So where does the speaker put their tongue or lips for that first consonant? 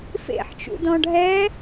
lips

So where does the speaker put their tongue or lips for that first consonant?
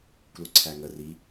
velum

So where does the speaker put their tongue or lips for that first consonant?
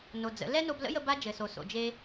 tongue tip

